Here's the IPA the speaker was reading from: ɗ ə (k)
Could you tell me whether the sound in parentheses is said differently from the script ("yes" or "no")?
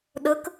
no